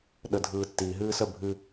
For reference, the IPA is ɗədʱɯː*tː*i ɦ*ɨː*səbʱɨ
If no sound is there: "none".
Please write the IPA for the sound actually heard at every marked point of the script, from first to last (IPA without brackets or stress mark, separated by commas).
tː, ɨː